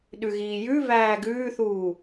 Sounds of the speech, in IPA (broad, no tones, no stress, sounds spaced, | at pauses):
ɗ ʉ ɣ iː j ʉ v æː ɡ ʉː θ uː